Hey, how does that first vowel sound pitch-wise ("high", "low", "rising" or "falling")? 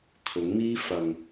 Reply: rising